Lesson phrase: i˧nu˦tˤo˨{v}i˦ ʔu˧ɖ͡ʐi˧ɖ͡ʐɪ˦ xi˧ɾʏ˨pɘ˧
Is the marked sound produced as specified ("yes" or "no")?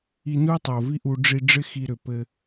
yes